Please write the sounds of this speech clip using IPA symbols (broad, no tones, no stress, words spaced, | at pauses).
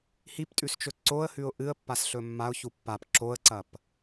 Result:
hiptʼʉst͡ʃɵ ǀoə̯hʉʊ̯ ʔɨə̯pːasɬɵ mːaʊ̯çu pːap ǁoə̯ǀɐp